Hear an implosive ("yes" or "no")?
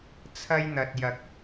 no